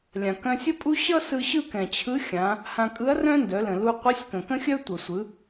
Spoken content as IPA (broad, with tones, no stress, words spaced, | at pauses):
lʲã˩ kœ̃˧sʲ ə˥pʼu˥ ɕʌ˥sɯ˧ ɕɯ˥kɛ̃˩t͡ɕʰɯ˧˥ xʲã˩˧ | hã˧kʼɯ˧˥ɐ̯ rœ̃˥ndœ˩˧lə̃˩ lu˧ qʷɛ˧˥sʲkə̃˩kə̃˥xʲœ˥ tʷʌ˩sʷɯ˩˧